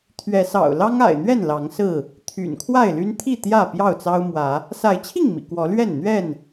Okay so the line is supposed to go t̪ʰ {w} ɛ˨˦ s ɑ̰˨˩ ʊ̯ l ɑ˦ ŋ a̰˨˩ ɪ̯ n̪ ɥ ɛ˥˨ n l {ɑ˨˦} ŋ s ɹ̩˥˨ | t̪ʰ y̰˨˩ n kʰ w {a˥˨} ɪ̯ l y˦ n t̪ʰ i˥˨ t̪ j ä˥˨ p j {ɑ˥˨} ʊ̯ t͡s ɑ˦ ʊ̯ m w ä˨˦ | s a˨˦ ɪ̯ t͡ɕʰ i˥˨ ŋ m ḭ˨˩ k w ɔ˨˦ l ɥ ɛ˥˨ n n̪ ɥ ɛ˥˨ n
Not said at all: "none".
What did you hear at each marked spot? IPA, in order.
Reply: ɥ, ɑ˨˦, a˥˨, ɑ˥˨

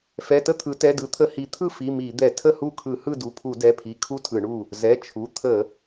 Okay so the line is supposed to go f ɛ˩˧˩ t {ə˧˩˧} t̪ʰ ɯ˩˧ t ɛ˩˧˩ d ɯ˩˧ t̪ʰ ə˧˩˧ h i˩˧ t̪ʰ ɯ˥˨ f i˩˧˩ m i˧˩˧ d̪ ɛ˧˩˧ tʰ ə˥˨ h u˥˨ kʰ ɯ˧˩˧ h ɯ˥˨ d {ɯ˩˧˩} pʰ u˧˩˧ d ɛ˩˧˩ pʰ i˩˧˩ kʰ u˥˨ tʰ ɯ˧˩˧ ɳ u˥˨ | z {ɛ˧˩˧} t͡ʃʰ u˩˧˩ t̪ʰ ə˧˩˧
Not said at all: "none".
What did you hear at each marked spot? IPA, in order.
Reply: ə˥˨, u˩˧˩, ɛ˩˧˩

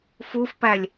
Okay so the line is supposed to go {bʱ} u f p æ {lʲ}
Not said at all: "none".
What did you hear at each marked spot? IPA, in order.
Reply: f, lʲ

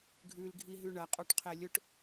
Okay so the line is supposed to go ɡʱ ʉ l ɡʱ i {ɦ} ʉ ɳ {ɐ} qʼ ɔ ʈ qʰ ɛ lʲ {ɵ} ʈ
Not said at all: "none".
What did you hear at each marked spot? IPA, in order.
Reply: ɦ, ɐ, ɵ

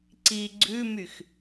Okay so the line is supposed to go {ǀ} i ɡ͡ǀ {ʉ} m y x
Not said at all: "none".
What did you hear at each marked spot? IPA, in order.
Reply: ǀ, ʉ

